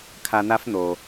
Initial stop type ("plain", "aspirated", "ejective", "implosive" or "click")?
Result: aspirated